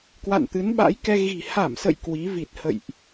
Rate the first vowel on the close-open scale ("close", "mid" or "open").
open